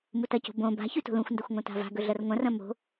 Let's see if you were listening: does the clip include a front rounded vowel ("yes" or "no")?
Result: no